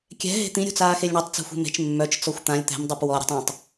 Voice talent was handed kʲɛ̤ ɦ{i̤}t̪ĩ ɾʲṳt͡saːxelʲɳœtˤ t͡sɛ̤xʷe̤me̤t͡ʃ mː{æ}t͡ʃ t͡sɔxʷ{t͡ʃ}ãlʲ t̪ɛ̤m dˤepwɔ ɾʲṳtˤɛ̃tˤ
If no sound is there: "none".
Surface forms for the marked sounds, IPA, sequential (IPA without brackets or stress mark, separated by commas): e̤, œ, t̪